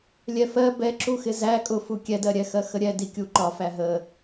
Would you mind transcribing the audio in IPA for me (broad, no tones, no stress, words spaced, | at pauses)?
lʲɛfɜ bɛǁuxɪ zæ kʼʊfu kʲɛdɜɾʲɛ xɜxəɾʲɛ dikʲuǃɒ fæɦə